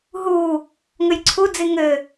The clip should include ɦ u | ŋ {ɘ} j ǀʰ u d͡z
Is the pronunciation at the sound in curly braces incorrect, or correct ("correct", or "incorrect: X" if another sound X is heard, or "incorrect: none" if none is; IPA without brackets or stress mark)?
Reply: correct